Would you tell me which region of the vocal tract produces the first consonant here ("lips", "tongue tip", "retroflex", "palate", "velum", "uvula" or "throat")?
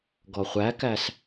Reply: velum